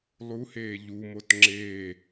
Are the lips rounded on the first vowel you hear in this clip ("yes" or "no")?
yes